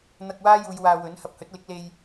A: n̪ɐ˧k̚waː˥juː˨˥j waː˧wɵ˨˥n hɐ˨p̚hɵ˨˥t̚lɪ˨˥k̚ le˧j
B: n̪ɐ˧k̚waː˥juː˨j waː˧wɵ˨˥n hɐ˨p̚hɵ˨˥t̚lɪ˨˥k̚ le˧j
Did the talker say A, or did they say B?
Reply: B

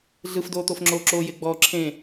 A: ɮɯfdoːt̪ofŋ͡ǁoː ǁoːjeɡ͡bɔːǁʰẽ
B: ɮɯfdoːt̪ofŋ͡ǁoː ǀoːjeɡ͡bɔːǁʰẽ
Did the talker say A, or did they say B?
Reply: A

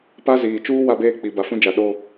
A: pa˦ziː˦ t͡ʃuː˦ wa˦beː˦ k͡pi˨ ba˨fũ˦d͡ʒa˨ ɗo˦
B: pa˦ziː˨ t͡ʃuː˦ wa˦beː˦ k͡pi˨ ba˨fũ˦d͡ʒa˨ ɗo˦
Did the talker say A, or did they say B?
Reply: B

